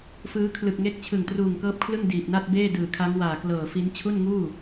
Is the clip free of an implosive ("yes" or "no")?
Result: yes